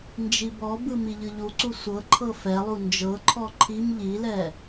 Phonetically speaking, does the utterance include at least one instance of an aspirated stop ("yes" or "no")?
yes